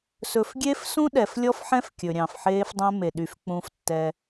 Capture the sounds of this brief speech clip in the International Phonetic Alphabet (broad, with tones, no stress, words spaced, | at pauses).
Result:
sɵ˨fɡʲe˦fsũ˦ ɗɛ˨flʲɔ˦fħɛ̃˦f kʲɵ˨ɾʲɑ̃˨fħeː˦fdˤɛ̃˦ me˨ ɗy˨f k͡pũ˦ftːɛː˦